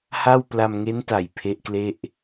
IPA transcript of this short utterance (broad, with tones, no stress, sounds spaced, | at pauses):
h a˥˩ w p l a˧ m ŋ e˦˥ n t a˨˩ j pʰ e˦˥ ʔ k l e˥˩ ʔ